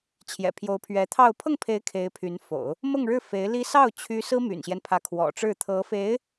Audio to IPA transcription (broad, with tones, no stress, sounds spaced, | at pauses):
t͡ɕʰ j ɛ̰˨˩ pʰ j o˧˥ ʊ̯ pʰ ɥ ɛ˧˥ t̪ʰ ɑ˥˧ ʊ̯ pʰ ɤ˥˩ ŋ pʰ e˧˥ ɪ̯ kʰ e˧˥ ɪ̯ pʰ y˧˥ n f o̰˨˩˦ ʊ̯ | m ɤ˥˧ ŋ ɻ ɻ̩˥˩ f e˧˥ ɪ̯ l i˥ s ɑ˥˩ ʊ̯ t͡ɕʰ y˥ s ɹ̩˥ m y̰˨˩ n ɕ j ɛ˦ n pʰ ä˧˥ kʰ w ɔ̰˨˩ ʈ͡ʂ ɻ̩˥˩ t̪ʰ ɤ˧˥ f e˧˥ ɪ̯